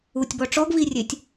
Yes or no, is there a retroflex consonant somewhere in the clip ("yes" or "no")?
yes